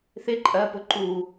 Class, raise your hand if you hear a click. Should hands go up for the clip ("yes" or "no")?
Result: yes